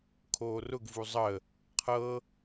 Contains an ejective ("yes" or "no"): no